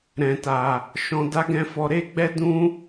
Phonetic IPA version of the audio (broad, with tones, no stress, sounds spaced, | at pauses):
ɾ ɛ̃˨ t a˨ | ʃ ɔ̃˧ d a˦ ɡ ɛ̃˦ f ɔ˧ ɾ e˦ ɡ͡b ɛ˦ d ũ˦